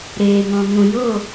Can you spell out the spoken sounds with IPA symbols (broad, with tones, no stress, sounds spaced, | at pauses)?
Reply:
ɾ eː˨ ŋ ɔ̃˨ ŋ ũ˨ j o˦˨